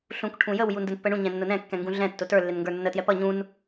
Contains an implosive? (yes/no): no